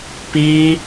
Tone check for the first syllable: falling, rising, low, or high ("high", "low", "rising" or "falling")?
high